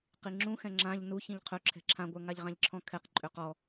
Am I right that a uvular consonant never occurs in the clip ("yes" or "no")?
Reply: no